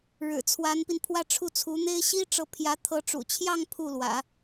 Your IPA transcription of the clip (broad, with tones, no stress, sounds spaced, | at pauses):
ɻ ɻ̩˨˩ t͡sʰ w a˧˥ n p i˧ n pʰ w ä˥˧ ʈ͡ʂʰ u˥˩ t͡sʰ u˧˥ n̪ e˥ ɪ̯ ɕ i˥ ʈ͡ʂ ɤ˧˥ pʰ j ä˧˥ t̪ʰ ɤ˧˥ ʈ͡ʂ ṵ˨˩ t͡ɕʰ j ɑ˥˧ ŋ pʰ u˥˩ l w ä̰˨˩˦